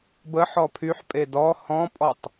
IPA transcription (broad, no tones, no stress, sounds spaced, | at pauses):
b ə ħ ɔ pʰ y ħ pʼ e d ɔ h ɔ̃ pʼ ɔ tˤ